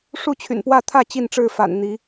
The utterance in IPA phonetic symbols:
ʂu˥˨t͡ɕʰy̰˨˩npwä˥˨ t̪ʰä˥˨ t͡ɕi˥˨nʈ͡ʂɻ̩˥˨fa̰˨˩n n̪i˨˦

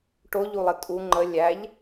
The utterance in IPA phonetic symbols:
ʈoʎulˠɘ tʼu ŋ͡ǃə lʲæʎ

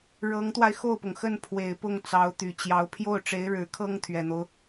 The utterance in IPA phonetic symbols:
ɻɤ˧˥ŋt̪wa˧ɪ̯ xo˥˩ʊ̯pʊ˩ŋxə˥˩n pʰwe˨˩ɪ̯pʊ˥˩ŋ t͡sɑ˧˥ʊ̯t̪y˨˩ t͡ɕjɑ˧˥ʊ̯ pʰjo˥˩ʊ̯ʈ͡ʂe˧˥ɪ̯ɻɻ̩˧˥kʰɤ˥ŋ t̪ʰɥɛ˨˩n̪o˦ʊ̯

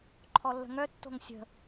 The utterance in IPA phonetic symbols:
ǃʰɔlːə̤ŋœ tːo̤ŋsʲə̤

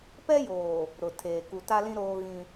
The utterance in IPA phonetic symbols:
pɛ˦joː˨ | ɾʊ˨tʰeː˨ ku˨ta˦lĩ˦ ɾoː˦ɣĩ˦

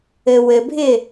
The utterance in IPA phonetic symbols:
ɘwɘbʱɪ

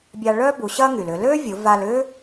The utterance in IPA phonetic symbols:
bʲa˧ɭœː˥bu˩˧ ɕɐ˥ŋy˩lʏ˩˧ lø˥vʲʊ˩˧ va˧lʏː˥

